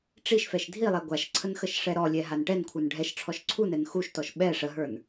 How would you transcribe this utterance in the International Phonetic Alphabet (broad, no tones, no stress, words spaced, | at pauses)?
ʈ͡ʂiʃfɛʃ dʱi lˠɛɡʷaʃǀʰən xəʃʂɛɾɔlʲɛ ɦanʈɛnkʷʰə˞n ɖʱɛʃʈ͡ʂʰɔʃ ǀʰunɛn xuʃtɔʃ ɓɛ ʂəɦə˞n